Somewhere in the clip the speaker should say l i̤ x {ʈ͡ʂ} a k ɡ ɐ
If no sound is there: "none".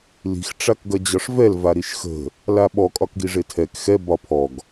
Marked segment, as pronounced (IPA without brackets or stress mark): ʈ͡ʂ